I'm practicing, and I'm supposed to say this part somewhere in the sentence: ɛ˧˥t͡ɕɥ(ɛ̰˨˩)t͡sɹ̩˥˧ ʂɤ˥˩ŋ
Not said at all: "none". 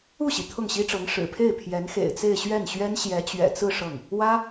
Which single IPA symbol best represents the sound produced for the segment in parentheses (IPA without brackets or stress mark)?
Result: ɛ̰˨˩